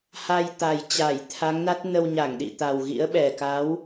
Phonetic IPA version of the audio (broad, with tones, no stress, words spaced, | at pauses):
ha˧jt̪a˨˩j t͡ɕa˧˩j t̪ʰa˨˦ŋna˦˥t̚ nə˧wɲa˧˩ŋɗḭ˧˨t̪a˨˩w ɣḭ˧˥ə̯ɓɛ˨˩ ka˨˦w